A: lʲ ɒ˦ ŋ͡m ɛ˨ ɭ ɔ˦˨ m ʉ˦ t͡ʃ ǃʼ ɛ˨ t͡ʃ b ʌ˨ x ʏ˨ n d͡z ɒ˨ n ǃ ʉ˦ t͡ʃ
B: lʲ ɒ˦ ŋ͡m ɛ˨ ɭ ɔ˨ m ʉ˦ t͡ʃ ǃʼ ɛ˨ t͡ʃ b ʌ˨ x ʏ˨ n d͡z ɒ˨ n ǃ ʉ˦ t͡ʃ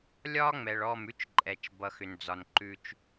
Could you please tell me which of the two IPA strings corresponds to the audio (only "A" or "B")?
A